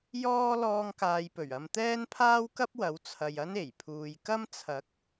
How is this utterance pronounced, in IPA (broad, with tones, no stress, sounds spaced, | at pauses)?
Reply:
j ɔː˥ l ɔː˧ ŋ k aː˨ j p ɵ˨˩ ɥ ɐ˧ m t̪ ɛː˥ n pʰ aː˥ w k ɐ˥ p̚ w ɐ˨˥ w t͡sʰ ɐ˨ j ɐ˥ n e˨˩ j pʰ uː˨ j k ɐ˥ m t͡sʰ ɐ˨˥ k̚